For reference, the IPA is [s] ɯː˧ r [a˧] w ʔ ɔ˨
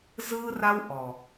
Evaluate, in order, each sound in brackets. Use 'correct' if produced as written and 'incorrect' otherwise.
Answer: incorrect, correct

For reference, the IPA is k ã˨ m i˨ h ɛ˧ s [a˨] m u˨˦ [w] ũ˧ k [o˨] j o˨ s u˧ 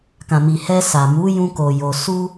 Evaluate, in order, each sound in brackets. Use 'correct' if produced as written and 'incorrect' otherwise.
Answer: correct, incorrect, correct

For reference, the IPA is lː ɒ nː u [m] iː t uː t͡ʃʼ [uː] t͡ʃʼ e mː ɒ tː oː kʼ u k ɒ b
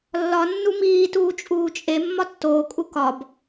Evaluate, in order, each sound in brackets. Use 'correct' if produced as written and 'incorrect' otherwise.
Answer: correct, correct

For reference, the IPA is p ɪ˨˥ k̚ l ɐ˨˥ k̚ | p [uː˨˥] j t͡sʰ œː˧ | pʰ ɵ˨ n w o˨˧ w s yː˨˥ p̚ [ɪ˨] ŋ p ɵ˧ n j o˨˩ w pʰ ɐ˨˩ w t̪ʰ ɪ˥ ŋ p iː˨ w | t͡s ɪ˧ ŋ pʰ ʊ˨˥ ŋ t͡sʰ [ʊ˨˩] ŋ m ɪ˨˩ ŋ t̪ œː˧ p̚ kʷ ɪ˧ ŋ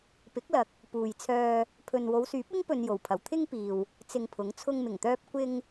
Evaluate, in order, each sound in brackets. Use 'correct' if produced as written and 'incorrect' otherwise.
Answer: incorrect, incorrect, incorrect

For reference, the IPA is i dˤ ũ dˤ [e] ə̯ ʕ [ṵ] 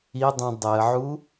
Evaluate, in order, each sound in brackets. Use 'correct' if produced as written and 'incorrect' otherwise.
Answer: correct, incorrect

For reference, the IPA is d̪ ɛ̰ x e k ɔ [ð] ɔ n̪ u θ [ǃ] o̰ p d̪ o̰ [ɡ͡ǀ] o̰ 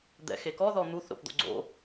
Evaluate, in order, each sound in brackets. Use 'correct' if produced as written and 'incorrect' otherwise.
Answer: correct, incorrect, correct

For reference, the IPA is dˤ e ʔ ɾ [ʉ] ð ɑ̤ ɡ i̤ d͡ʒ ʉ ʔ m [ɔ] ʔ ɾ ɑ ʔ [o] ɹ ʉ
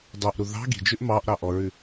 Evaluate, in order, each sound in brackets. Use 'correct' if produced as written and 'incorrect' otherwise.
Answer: incorrect, incorrect, incorrect

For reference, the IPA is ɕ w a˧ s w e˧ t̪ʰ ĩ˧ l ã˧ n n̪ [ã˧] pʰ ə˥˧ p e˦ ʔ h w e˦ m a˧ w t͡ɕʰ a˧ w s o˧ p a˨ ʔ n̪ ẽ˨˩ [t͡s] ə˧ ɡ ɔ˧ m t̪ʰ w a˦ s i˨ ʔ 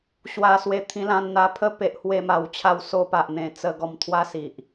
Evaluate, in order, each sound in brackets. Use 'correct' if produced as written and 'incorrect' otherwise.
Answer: incorrect, correct

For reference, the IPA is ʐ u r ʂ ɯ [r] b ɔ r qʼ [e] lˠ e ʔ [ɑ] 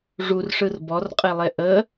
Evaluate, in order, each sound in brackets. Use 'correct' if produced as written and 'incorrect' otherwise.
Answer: correct, correct, incorrect

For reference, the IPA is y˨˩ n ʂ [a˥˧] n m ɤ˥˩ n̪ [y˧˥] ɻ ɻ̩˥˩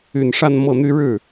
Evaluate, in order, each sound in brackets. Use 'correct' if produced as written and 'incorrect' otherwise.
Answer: correct, incorrect

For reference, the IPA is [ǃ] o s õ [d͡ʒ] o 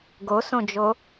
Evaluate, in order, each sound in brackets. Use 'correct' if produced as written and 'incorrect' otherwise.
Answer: incorrect, correct

